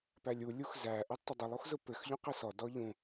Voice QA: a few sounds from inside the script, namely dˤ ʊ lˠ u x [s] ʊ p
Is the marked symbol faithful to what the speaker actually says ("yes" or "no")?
no